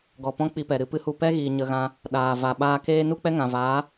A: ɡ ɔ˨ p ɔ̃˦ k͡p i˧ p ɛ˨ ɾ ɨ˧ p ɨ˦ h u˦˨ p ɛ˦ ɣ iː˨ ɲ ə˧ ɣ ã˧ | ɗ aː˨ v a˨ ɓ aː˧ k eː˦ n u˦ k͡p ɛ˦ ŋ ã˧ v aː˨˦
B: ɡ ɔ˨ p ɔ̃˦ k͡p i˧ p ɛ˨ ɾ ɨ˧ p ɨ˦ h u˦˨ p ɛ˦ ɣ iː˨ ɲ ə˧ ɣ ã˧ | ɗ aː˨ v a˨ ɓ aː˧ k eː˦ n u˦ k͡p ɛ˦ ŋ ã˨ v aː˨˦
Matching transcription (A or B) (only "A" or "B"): B